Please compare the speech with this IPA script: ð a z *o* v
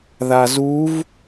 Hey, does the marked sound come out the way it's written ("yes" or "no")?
no